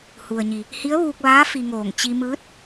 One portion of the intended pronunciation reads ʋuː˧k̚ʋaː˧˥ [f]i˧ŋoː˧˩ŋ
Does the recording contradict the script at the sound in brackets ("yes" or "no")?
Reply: no